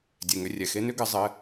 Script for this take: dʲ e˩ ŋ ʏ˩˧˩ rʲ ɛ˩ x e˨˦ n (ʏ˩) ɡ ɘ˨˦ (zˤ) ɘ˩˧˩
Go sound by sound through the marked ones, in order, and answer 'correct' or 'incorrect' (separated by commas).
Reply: incorrect, correct